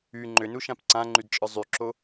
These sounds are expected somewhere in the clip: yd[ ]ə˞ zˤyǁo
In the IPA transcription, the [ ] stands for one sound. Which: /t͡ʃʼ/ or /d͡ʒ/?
t͡ʃʼ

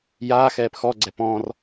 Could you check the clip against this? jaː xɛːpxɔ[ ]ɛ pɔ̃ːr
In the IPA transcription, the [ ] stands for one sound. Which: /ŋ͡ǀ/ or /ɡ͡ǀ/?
ɡ͡ǀ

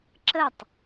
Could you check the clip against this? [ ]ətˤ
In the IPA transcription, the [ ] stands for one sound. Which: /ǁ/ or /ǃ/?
ǁ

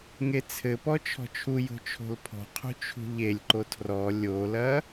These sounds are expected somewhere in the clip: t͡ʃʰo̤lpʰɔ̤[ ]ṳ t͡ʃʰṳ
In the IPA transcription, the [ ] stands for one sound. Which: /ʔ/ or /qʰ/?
qʰ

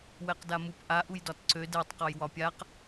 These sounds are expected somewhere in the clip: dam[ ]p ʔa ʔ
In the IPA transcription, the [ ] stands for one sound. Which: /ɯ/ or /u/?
u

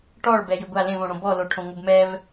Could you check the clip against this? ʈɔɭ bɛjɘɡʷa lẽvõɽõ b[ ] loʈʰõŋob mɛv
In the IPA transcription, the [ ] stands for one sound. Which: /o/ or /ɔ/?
ɔ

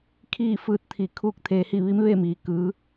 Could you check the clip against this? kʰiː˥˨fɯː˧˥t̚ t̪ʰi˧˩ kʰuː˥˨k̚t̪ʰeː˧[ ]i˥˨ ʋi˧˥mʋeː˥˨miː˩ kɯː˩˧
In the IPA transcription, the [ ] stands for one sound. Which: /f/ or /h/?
h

